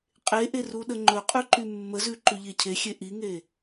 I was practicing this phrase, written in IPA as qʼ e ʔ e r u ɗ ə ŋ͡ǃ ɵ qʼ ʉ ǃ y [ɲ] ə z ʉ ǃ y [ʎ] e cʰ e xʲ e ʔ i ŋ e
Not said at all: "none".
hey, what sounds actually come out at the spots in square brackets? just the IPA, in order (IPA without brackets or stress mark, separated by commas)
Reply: mː, ʎ